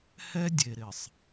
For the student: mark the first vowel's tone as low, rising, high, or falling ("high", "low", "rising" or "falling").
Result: high